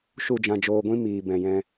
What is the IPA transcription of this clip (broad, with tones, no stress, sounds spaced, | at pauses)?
ʃ u˦˨ d͡ʒ ã˧ d͡ʒ oː˧ ɡʷ ĩ˦ m iː˨ b ɛ̃˨ j ɛ̃˧